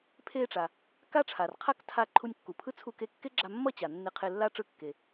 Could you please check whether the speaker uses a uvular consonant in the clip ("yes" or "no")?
yes